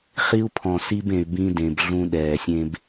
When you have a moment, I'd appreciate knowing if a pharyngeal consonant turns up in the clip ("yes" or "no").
no